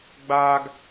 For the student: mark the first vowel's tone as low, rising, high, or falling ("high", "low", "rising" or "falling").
high